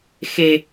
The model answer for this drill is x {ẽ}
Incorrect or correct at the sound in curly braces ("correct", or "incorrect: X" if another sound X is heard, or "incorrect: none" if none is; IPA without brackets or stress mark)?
incorrect: e